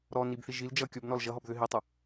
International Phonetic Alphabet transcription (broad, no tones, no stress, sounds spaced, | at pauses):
ɾ ɔ n i b θ i ʒ i l d͡ʒ ʌ kʲ ɔ b n ɔ l ʒ ʌ ɦ ɔ b ð ʏ ɦ i tˤ ʌ